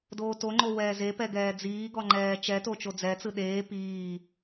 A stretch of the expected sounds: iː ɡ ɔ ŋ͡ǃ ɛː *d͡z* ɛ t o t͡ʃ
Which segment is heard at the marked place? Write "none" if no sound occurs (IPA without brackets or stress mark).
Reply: t͡ʃ